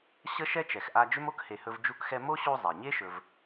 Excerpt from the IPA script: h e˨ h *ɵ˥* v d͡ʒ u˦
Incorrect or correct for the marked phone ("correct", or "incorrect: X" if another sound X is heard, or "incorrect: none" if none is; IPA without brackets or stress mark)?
incorrect: ɵ˦